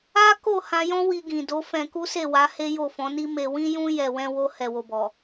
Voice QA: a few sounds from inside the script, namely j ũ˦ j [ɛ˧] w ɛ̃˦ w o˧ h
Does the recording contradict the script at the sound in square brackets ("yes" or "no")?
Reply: no